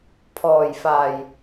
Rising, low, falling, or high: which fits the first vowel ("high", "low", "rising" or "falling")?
low